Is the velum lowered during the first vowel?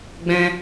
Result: yes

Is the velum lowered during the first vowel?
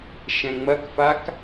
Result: yes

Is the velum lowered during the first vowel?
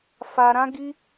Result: no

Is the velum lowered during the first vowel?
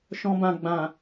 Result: yes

